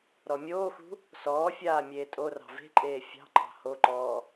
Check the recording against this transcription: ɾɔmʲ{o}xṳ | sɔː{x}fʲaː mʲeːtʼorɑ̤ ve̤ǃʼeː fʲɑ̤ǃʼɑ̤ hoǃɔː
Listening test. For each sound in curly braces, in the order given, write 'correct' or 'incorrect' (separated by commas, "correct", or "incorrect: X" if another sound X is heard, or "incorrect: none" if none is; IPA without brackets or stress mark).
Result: incorrect: oː, incorrect: none